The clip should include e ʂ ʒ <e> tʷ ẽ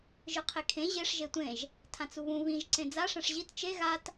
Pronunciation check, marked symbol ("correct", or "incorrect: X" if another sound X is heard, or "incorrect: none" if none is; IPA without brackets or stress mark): correct